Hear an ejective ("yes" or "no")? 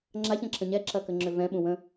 no